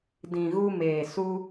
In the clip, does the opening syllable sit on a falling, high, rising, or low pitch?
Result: low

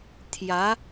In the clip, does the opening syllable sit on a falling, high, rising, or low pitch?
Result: rising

